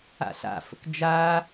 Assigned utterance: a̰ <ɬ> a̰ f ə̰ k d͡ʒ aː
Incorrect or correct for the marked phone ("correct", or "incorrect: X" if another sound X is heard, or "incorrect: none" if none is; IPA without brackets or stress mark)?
correct